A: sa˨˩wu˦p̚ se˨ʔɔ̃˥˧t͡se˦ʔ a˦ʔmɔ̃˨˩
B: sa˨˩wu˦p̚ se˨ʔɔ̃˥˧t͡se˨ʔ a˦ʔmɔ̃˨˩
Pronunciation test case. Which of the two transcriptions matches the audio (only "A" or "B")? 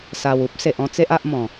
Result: A